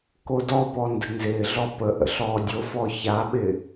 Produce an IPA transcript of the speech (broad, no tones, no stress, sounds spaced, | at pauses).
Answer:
k o d ɔ p ɔ n d ə̤ n z ɪː ɮ ɔ p ə ʔ ə̰ ɬ ɔː dʲ o f ɔ ç a ɓ ɪ